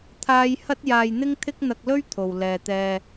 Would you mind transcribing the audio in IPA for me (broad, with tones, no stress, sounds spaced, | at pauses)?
t̪ʰ aː˥ j h ɐ˥ t̚ j aː˧ j n̪ ɪ˥ ŋ t̪ʰ ɪ˥ k̚ n̪ ɐ˧ k̚ l ɵ˥ ɥ t̪ʰ o˨ w l ɛː˨ t̪ ɛː˧